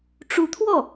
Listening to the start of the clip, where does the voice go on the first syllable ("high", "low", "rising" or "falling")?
rising